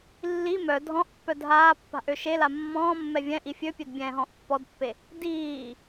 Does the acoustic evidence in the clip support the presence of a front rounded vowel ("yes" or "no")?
yes